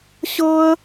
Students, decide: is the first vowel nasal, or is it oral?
oral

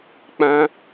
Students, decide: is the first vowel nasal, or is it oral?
nasal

